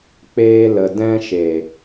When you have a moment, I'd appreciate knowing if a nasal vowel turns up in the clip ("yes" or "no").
yes